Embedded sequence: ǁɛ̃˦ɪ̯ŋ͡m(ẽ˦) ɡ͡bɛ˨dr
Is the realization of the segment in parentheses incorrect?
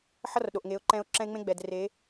no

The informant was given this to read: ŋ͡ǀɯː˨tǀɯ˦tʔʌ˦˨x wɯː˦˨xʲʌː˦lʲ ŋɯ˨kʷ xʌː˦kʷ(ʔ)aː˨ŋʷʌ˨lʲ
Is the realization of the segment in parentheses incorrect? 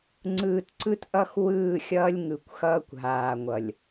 yes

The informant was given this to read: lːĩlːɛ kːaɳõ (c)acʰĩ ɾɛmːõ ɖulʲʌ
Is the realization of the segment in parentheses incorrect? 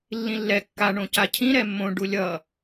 no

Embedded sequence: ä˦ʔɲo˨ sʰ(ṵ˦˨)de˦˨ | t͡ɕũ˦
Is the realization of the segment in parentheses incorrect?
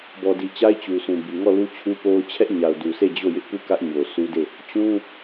yes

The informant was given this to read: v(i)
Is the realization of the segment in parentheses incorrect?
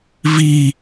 no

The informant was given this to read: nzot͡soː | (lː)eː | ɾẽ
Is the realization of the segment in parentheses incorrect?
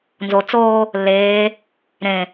no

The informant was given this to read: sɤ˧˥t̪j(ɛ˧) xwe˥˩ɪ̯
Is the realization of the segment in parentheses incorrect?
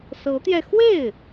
no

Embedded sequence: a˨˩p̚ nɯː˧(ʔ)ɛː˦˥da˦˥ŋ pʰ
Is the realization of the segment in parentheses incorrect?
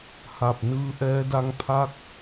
no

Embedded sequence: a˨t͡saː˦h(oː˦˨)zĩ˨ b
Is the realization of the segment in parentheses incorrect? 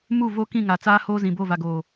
yes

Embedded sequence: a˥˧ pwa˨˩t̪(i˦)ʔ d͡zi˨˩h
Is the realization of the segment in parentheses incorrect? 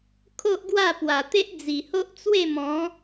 yes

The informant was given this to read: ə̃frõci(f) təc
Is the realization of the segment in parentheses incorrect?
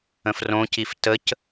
no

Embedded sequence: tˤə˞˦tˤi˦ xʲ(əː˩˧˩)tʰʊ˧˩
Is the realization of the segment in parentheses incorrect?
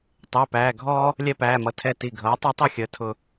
no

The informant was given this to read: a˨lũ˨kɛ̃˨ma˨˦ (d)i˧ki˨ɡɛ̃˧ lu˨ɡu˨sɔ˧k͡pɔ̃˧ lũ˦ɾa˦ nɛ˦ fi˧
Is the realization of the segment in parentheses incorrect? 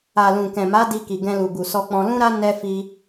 no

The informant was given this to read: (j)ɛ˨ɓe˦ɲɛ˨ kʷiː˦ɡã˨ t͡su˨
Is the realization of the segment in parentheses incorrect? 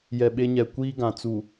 no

